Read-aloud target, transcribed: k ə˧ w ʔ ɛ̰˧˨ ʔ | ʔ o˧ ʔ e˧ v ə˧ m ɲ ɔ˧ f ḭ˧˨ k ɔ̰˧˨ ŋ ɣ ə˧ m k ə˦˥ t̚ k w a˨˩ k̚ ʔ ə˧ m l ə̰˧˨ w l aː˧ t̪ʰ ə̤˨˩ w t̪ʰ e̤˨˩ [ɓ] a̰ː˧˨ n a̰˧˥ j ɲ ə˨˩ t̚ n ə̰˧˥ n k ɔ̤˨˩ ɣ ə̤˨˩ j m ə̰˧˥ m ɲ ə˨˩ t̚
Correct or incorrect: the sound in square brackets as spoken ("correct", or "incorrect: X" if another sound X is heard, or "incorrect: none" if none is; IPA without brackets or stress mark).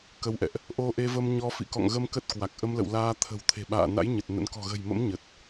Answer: correct